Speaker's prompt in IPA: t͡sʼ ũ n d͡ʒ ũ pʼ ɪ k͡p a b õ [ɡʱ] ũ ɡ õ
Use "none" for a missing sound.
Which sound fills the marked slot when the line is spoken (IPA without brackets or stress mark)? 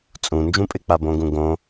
ɡ